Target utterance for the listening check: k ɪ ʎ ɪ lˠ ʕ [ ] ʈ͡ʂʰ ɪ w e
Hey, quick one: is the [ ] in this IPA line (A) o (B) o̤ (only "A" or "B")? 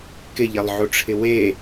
A